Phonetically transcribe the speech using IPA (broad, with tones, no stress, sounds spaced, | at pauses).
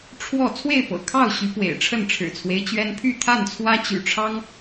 ʈ͡ʂʰ w ɔ˥˨ t͡sʰ w e˥˨ ɪ̯ p ɤ̰˨˩ kʰ ɑ˥˨ ʊ̯ ɕ y˨˦ p w ḛ˨˩ ɪ̯ ʈ͡ʂʰ ə˥˨ n ʈ͡ʂʰ ɻ̩˨˩ t͡sʰ w e˦ ɪ̯ t͡ɕ ɥ ɛ˦ n pʰ y˥˨ t̪ʰ a˥˨ n t͡sʰ w ä˦ t͡ɕ y̰˨˩ ʈ͡ʂʰ ɑ˦ ŋ